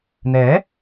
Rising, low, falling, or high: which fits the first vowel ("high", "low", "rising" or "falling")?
rising